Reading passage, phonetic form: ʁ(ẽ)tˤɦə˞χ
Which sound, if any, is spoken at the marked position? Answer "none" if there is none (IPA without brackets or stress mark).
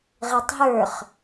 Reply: e